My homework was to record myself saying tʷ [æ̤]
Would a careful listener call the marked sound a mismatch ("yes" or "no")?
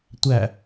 yes